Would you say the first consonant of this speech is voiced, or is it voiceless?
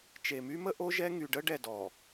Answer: voiceless